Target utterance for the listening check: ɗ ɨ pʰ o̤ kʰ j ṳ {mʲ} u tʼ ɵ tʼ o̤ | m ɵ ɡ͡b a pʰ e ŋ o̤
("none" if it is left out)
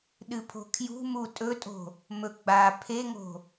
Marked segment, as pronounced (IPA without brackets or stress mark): m